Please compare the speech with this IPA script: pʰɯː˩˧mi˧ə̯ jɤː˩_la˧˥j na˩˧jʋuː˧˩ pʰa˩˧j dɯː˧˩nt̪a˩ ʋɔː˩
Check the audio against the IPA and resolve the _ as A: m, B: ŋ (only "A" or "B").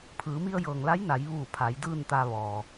B